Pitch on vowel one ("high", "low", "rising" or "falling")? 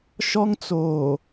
high